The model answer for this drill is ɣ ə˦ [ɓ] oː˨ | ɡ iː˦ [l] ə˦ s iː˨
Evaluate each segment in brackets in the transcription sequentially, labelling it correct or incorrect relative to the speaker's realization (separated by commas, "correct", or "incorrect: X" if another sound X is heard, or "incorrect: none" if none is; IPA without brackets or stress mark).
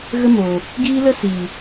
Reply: incorrect: m, correct